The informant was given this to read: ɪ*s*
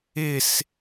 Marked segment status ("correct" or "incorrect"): correct